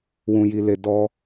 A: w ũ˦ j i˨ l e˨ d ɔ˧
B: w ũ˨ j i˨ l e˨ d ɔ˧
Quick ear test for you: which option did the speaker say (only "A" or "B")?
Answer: B